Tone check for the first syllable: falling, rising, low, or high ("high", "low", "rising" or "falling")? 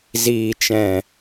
low